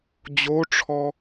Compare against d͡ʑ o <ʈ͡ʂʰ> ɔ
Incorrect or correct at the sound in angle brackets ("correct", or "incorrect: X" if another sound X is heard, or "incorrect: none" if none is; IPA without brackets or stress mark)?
correct